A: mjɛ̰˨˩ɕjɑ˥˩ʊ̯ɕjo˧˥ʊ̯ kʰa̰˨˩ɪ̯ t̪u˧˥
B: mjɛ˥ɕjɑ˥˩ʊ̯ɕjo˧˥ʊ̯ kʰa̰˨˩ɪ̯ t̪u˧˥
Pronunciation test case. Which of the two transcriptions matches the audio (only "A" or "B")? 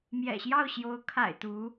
A